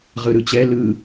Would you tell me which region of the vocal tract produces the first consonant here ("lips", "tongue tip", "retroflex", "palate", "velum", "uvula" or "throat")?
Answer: uvula